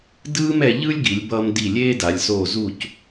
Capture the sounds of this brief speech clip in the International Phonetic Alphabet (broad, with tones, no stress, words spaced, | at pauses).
dɯː˥mɛ˧ ʎɯ˥lʲɡi˩˧lʲ bʌː˧mdi˧˩ lʲeː˥da˩˧lʲsoː˧˩ zu˧˩c